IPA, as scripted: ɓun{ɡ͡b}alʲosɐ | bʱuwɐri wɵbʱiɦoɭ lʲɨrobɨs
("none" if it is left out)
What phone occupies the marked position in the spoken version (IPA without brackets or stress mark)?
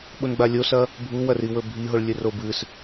ɡ͡b